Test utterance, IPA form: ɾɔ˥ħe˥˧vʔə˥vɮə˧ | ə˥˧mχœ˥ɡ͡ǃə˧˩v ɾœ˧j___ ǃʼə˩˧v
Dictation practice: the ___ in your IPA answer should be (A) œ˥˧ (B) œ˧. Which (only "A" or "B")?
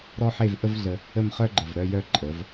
B